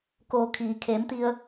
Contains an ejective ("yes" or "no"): no